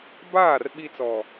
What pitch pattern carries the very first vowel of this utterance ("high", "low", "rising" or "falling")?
falling